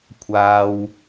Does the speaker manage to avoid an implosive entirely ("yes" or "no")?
yes